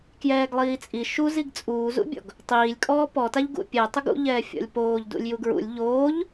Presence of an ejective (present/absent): present